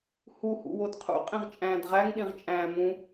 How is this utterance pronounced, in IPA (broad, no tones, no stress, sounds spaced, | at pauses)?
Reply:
h u h ṵ w o d qʰ ṵ qʼ ĩ ʁ t͡ʃʼ æ̃ː d ʁ æ ŋ ɗ ĩ ʁ t͡ʃʼ æ̃ː m ũ